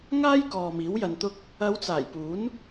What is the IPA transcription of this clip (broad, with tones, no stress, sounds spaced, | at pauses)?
ŋ aː˥ j k ɔː˨ m iː˨˥ w j ɐ˧ n t̪ ʊ˥ k̚ | ɐ˨˧ w t͡s aː˨˩ j p uː˨˥ n